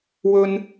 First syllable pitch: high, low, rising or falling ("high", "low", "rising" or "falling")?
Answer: high